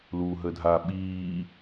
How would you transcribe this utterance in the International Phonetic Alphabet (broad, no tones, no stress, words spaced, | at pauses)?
luːɦədʱa ɓiː